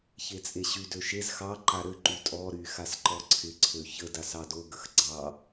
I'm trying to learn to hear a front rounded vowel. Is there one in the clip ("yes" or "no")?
yes